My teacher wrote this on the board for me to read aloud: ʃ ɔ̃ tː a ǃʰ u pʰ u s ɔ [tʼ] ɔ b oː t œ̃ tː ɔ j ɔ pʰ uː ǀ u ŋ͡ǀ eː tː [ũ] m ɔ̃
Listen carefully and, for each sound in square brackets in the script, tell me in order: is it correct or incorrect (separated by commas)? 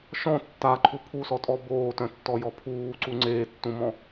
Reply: correct, correct